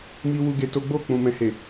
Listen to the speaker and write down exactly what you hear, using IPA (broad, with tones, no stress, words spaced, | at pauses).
mi˧ wu˦ɡe˧to˦ ɡ͡bo˦˨ k͡pũ˨mɛ̃˨he˨